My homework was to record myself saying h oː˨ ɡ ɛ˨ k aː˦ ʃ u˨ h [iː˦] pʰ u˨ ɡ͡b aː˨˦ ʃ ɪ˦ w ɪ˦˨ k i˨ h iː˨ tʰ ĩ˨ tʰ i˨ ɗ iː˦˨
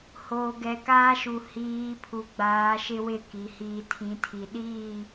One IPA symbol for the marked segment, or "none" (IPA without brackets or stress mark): iː˨˦